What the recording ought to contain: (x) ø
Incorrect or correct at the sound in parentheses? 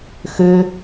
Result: correct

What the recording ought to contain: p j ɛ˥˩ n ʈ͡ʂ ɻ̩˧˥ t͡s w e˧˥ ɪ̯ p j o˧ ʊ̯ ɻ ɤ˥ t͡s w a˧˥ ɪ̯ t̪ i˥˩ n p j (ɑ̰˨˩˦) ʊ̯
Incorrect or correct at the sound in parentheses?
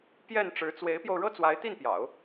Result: correct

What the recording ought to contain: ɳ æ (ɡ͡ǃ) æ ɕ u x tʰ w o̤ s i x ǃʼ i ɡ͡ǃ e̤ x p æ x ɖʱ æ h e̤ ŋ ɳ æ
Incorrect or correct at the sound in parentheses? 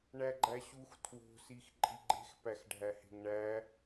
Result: correct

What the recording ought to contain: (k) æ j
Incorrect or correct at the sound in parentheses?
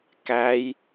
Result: correct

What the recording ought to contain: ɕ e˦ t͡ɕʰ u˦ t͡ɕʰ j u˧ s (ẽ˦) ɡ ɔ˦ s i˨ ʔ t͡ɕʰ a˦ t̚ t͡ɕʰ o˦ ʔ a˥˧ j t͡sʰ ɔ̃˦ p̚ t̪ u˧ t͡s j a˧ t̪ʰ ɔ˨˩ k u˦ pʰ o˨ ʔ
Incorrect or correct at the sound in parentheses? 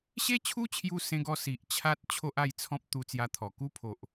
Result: correct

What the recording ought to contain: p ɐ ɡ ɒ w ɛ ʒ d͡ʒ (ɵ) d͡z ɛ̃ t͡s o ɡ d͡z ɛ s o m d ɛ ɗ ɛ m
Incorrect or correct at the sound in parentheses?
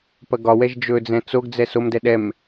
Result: correct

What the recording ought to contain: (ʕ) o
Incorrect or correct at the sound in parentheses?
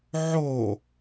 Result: correct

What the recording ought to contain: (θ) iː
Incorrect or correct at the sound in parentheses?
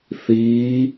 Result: correct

